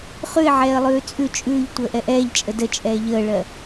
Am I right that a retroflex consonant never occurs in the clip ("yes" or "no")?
no